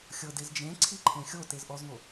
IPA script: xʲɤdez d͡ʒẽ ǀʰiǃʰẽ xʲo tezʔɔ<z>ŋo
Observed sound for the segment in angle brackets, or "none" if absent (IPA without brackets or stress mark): z